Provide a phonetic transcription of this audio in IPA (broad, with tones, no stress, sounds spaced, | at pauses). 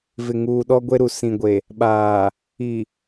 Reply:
v ɪ˨ ŋ uː˨ ɗ ɔ˦ ɡʷ e˦ ɾ u˨ s ĩ˨ ɡʷ e˨ | ɓ aː˨ | i˨